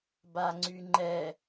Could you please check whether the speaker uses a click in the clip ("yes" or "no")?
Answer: yes